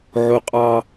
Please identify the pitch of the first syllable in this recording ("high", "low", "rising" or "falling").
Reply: high